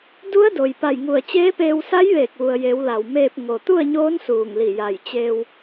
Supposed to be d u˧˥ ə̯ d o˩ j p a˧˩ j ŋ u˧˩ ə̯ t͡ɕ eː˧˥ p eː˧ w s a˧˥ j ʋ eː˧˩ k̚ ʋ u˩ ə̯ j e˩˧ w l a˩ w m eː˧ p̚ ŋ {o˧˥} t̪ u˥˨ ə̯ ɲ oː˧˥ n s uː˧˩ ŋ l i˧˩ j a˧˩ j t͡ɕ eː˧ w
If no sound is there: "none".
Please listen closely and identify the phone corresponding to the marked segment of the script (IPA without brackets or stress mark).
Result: o˩